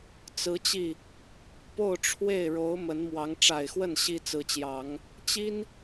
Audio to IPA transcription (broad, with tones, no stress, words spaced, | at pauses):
t͡sɹ̩˧˥t͡ɕi˥˩ | po˥˧ʊ̯ʈ͡ʂʰwe˥˩ɪ̯ ɻo˧˥ʊ̯ mə˧˥nmwɑ˧˥ŋ ʈ͡ʂa˨˩ɪ̯xwə˥˩n ɕi˥ t͡sɹ̩˧˥t͡ɕjɑ˨˩˦ŋ | t͡ɕi˥n